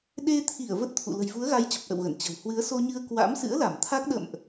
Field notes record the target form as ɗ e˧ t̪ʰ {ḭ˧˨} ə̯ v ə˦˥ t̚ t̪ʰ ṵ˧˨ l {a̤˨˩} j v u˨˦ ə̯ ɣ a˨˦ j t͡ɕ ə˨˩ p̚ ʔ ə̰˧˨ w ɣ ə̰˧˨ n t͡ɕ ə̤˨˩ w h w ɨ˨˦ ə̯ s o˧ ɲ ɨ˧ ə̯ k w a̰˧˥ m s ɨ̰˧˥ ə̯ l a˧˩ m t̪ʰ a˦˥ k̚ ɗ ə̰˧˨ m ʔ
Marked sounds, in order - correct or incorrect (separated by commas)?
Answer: incorrect, incorrect